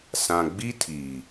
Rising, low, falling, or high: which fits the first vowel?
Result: low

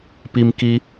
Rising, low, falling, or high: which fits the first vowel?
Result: high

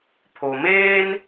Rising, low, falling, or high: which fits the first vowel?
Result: low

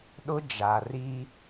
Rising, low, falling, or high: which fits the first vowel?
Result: high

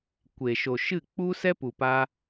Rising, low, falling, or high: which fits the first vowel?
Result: low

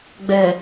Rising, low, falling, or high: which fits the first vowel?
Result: low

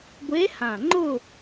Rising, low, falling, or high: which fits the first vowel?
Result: rising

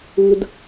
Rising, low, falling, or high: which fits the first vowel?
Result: high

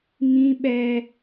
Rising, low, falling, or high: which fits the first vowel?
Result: high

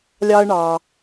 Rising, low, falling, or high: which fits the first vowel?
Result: high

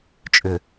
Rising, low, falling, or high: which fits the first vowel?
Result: low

